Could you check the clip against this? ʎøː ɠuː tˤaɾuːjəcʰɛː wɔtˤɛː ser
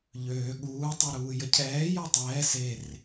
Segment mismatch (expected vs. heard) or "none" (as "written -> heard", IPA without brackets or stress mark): w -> j